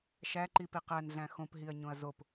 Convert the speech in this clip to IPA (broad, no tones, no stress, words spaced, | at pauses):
ʃæǃipi qænɮæ̃ xõpɦiɐ̯ɲõɐ̯ zop